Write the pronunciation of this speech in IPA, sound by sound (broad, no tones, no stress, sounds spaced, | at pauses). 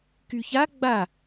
k y ç a ɡ͡b a